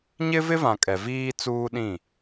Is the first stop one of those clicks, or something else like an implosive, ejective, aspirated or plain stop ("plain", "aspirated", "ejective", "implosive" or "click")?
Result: ejective